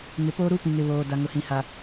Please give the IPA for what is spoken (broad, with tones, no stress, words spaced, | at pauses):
ŋɪ˨poː˦ɾu˦ pĩ˨ŋɪ˨βoː˨ da˨ŋʊ˨hĩ˨ha˨